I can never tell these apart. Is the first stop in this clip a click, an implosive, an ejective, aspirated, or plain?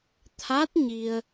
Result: aspirated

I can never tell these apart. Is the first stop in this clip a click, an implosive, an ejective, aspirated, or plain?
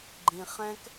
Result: click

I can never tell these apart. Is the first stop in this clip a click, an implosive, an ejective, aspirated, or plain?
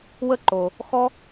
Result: click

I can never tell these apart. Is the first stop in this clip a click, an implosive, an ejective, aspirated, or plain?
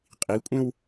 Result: ejective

